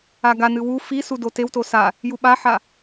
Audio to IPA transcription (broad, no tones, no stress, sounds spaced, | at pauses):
a ɡ a n ɨ w u f i s u d o t e w t o s a | j u ɓ a ħ a